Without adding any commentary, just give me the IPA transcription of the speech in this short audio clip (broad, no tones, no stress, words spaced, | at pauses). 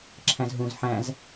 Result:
ǁʰæ̃zɦũz ħæ̃z